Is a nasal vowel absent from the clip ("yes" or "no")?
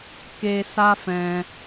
no